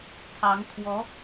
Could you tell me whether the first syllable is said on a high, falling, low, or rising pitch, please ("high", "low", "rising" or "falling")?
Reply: rising